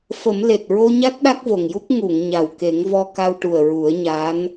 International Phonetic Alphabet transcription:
f ə˨˩˦ m l e˨˩ t̚ ɹ o˧ ɲ a˦˥ t̚ ɗ a˦˥ k̚ v o˨˩ ŋ j u˦˥ k̚ ŋ u˨˩˨ ŋ ɲ a˨˩ w k e˨˩˦ ŋ v ɔ˧ k a˧ w ʈ u˨˩ ə̯ ɹ u˨˩˦ ə̯ ɲ a˧˥ n

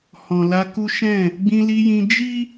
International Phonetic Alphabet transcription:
h ɔ̃˨ l a˧ k u˦ ʃ ɛ̃˦˨ | ɡ͡b ĩ˧ l i˧ j ĩ˧ d͡ʒ i˦

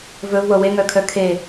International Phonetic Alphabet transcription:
v ɵ v w ɤ w e ŋ œ kʰ œ kʰ e

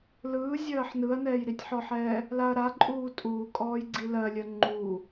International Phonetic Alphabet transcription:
l ɯː zʲ ɜː ħ n ɯ ɐ̯ n ɛː j ɾ i tʲ ħ ɔ ħ ɛː | l a ɐ̯ ɾ a ǃʼ uː tʼ uː kʼ ɔː j ɡ͡ǀ i l ɜ lʲ ɜ ŋ͡ǃ u

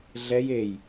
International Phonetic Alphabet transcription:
ɮ ɛ j e j

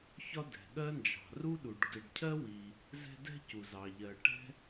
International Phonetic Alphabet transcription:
ç ɒ˥ d ɛ̤˩ ɠ ɜ˥ n d͡ʒ ɑ̤˩ r u˥ ɗ u˩ ɖ ɡ ɪ˨ ɖ cʰ ɜ˥ w i˨ | z ɛ̤˦ d ɛ̤˥ c u˩ z ɑ˩ ʎ ɜ˨ ʈ ɛ̤˥

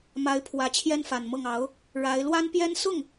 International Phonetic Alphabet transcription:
m a˧˥ ɪ̯ pʰ w ä˧˥ t͡ɕʰ j ɛ˥ n f a˨˩ n m ɤ˥˩ ŋ ɑ˧˥ ʊ̯ | ɻ a˧˥ ɪ̯ l w a˥ n p j ɛ˥ n s ʊ˥˩ ŋ

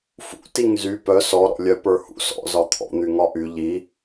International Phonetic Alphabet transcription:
f ṵ t i ŋ z y p œ s ɔ ɾ ɔ̰ lʲ œ p ə˞ h ṵ s ɔ̰ z ɒ t̪ʰ ɔ̰ n̪ y ŋ ɒ ʔ y ʎ i

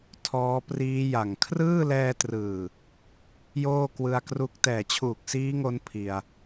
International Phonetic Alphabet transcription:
tʰ ɔː˦˥ p r iː˦˥ j a˨˩ ŋ kʰ r ɯː˥˩ l ɛː˧ t r ɯː˨˩ | j oː˥˩ k w ɯ˧ a̯ k r u˦˥ k̚ t ɛː˨˩ t͡ɕʰ uː˨˩ k̚ s iː˦˥ ŋ o˧ n pʰ i˧ a̯

